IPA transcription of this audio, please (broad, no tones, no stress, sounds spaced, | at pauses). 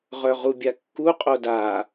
ʁ œ ʁ u bʲ a kː u qʼ o d a